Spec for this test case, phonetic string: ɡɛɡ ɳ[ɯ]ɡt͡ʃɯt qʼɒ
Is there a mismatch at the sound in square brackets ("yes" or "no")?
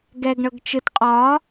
yes